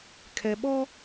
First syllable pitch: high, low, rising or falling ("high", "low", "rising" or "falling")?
low